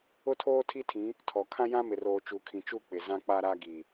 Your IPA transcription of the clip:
ʊ˦ tʰ oː˦ tʰ i˦ tʰ ĩ˨˦ | tʰ ɔ˨ kʰ ã˦ j ã˦ m ɪ˨ r oː˨ t͡ʃ u˨ kʰ ĩ˨ t͡ʃ u˦˨ k͡p ɪ˨ z ã˦ k͡p a˦ ɾ a˦ ɡ i˨

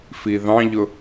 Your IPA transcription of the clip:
f i ð ɑ̃ ʎ ʊ

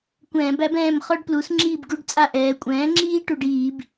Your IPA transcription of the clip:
kʷ ɛ̃ː˧˩˧ b æ˩˥ b ɛ̃ː˦˨ m χ ɔ˦ ɖ p l u˩˥ s ŋ͡ǁ iː˦˨ b ɡ u˦˨ ɖ t͡sʼ a˦˨ ʔ ɛː˩˧ kʷʼ ɛ̃ː˩˥ ŋ͡ǁ iː˦ ʈ u˧˩˧ ɖ iː˧˩˧ b

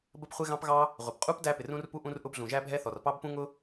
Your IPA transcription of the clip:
b ə˥ p χʷ ɪ˥ ɣ ɑ̃˥ p ɣ ɑ˥ | ʁʷ ɪ˩ p qʼ u˥ p d æ˥ p ɪ˩ r ũ˥ r p u˥ ʔ ũ˥ r ʔ ʊ˥ b ɮ ũ˩ ʒ æ˥ bʱ ɛ˥ θ ɔ˩ r p ɑ˥ b p ũ˥ ŋ ʊ˥

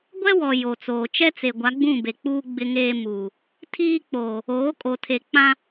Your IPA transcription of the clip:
ɡʷ ɛ˦ w ɔ˨ j o˨ t͡s oː˨ t͡ʃ ɛ˦ t͡s e˨ ɡʷ a˨˦ ɡ͡b ũ˦˨ b e˨ k͡p uː˦ ɡ͡b ɪ˦ ŋ eː˦ m uː˨ | tʰ iː˦ k͡p oː˨ | oː˨˦ kʼ o˨ tʰ e˨ k͡p ã˦

